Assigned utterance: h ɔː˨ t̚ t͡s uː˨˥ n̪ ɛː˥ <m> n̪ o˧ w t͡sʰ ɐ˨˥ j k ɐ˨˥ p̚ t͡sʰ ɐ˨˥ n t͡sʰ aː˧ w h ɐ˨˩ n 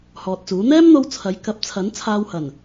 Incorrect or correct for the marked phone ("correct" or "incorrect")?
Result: correct